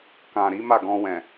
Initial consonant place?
velar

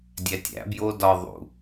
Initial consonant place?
alveolar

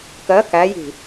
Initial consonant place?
velar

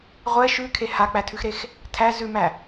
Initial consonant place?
uvular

